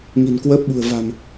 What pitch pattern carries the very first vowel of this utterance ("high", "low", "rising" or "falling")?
low